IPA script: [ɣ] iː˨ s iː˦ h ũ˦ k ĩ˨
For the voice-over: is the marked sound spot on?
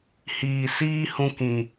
no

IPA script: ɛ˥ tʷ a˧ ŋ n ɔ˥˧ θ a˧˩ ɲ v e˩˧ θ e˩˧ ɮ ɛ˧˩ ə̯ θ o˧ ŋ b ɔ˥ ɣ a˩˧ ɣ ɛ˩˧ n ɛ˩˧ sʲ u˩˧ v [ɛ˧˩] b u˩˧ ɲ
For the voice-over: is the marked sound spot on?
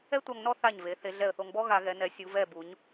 yes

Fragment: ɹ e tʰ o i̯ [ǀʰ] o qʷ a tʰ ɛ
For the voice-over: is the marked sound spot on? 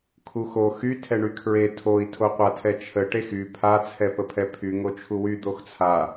no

